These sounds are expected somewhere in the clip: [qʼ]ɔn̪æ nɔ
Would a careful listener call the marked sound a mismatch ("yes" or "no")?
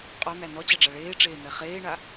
no